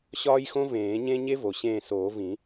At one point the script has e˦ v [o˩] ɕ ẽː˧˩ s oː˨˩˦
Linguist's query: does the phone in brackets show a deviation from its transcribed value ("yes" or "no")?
no